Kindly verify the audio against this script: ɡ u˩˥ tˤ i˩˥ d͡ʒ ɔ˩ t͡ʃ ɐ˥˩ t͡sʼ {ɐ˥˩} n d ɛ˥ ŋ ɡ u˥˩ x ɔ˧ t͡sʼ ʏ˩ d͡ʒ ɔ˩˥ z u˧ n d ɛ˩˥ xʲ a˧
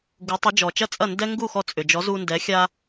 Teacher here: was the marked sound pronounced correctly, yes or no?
yes